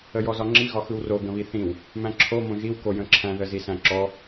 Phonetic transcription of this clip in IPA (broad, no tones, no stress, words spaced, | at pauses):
əjɔzɒŋ͡ǁi ɣɒxɯwro ɡə̃βiθĩw | mæ̃ǁʰo mõʒiw kojə̃ǁʰæ̃ ðəzisæ̃ǁɔ